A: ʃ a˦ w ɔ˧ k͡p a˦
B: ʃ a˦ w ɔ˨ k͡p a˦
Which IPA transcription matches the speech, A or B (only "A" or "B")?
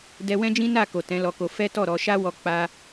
A